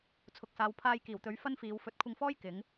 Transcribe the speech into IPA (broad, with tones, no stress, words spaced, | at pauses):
t͡sʰʊ˨k̚saː˨˧w pʰaː˧jkiː˨˩wt̪ɵ˨˧ɥ fɐ˥nfiː˨˧w fɵ˨˥t̚kʷʰɪ˧ŋfɔː˥jkɪ˨˧ŋ